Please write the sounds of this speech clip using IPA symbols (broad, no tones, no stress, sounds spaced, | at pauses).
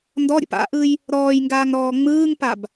n d ɔ ɾʲ ə̰ p a̰ ʔ ɯ j | ɾ ɔː j ŋ ɡ aː ŋ ɾ ɔː ŋ͡m ɯː ŋ p a b